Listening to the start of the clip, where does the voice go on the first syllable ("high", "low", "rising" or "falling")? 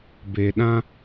low